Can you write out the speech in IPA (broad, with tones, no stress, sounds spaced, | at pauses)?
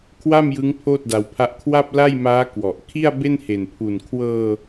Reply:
kʰ w a˥˩ m j ɯ˦˥ ŋ pʰ oː˥˩ t̚ d a˧ w pʰ a˦˥ ʔ kʰ w a˥˩ p̚ l a˥˩ j m aː˦˥ k w ɔ˨˩ ʔ kʰ i˥˩ a̯ b e˥˩ n h e˨˩ n pʰ u˨˩ n kʰ w ɤː˧